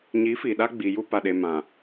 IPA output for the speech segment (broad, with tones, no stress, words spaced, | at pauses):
ɲi˨˦ fi˨ɗa˦ ɡ͡bi˨ ju˦pa˨ɗe˨ mã˨